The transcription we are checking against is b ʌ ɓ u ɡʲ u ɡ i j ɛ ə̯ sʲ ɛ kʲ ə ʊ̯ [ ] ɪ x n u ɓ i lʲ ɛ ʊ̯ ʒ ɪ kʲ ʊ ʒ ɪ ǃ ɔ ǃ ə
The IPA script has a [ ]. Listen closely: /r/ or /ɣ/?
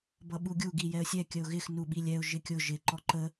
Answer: ɣ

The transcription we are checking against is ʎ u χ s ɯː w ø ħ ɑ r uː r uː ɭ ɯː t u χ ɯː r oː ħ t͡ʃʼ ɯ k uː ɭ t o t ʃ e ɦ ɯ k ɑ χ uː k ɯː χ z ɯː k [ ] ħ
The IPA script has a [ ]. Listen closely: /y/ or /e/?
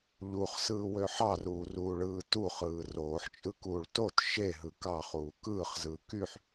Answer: y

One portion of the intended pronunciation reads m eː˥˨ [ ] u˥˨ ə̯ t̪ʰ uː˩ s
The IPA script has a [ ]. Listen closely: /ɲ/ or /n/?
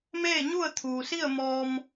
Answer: ɲ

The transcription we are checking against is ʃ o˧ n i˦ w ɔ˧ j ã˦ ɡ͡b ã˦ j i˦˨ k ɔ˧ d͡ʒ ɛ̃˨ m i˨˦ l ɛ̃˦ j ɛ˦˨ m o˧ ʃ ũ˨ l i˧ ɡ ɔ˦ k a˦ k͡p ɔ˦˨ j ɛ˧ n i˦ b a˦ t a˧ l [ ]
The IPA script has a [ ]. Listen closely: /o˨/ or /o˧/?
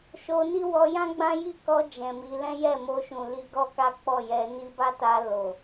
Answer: o˨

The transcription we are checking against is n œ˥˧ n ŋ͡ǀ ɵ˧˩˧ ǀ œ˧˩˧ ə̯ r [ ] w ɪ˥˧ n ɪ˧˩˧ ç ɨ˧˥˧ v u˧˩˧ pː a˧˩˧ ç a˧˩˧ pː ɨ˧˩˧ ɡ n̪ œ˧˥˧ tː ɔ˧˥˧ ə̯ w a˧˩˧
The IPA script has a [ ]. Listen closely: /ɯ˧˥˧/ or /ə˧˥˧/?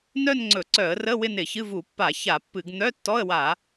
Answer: ə˧˥˧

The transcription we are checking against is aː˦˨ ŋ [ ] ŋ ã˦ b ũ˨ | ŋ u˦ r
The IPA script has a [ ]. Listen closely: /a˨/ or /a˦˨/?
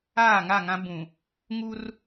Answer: a˦˨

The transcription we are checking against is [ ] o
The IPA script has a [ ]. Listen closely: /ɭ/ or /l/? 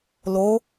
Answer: l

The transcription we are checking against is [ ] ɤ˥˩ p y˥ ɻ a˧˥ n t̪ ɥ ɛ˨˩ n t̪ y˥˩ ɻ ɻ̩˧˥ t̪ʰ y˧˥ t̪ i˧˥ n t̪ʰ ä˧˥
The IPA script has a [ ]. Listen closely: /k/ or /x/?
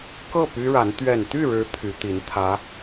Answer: k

